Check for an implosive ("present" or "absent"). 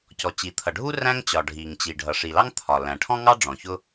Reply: absent